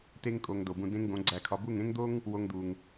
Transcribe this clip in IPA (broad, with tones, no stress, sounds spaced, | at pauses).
t e˧ ŋ kʼ o˨ ŋ d o˨ b ũ˧ d ẽ˦ ŋ ɡ õ˨˦ ɡ͡ǀ æ˧ kʰ ɒ˧ b u˦˨ ŋ ẽ˦ ŋ d̪ o˦ ŋ | w o˧ ŋ d̪ u˨ ŋ